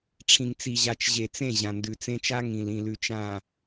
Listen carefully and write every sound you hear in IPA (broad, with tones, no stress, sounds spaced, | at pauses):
ʈ͡ʂʰ ĩ˨ ŋ t͡s i˨ ʑ a˨ t͡ʃ ʑ e˨ t͡s ẽ˦˨ ʑ ã˨ n d ʉ˨ t͡s ẽ˦ t͡ʃ a˦ ŋ ĩ˨ l ĩ˨ l ʉ˨ t͡ʃ ã˨